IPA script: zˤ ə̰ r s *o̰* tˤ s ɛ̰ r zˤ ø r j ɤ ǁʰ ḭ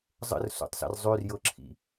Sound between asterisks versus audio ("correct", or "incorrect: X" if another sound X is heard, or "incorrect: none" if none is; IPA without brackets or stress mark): correct